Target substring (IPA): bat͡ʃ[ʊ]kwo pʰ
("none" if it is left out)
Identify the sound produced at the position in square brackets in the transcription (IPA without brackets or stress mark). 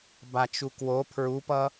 u